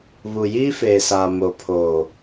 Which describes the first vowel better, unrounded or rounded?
rounded